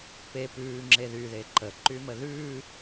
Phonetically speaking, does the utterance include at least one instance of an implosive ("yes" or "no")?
no